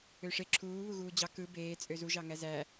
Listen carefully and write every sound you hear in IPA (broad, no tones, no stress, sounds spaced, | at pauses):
ø ʂ e ǁʰ uː β u ɣ uː d͡ʑ ɑ k ɯ b eː t͡sʼ ø z u ʒ ɑ ŋ æ z æ